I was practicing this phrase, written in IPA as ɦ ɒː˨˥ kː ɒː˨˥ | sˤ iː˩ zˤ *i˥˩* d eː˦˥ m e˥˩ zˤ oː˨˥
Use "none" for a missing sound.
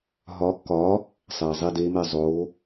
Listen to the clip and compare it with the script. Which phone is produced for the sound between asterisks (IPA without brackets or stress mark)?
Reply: i˥˩